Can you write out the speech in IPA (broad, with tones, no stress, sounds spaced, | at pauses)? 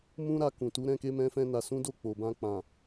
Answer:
m ũ˦ ɾ a˧ k ũ˨ t u˨˦ ɾ ɛ̃˦˨ k e˧ m ɛ̃˧ f ɛ̃˧ n a˨ s ũ˨˦ d o˦˨ k͡p o˨ b ã˧ k͡p ã˨